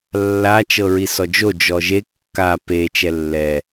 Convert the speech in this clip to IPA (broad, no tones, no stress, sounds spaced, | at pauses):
lː a t͡ʃ ɤ ɹ i s ɔ d͡ʒ o d͡ʒ ɔ ʒ e kː a p e t͡ʃ ɛ lː ɛ